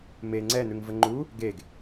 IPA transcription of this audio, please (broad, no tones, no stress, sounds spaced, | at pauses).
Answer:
m e ŋ͡ǀ ɛ n̪ ʉ ŋ v ə ŋ͡ǃ u | ɡ e ɡ